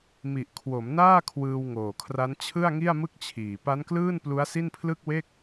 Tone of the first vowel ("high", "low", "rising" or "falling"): low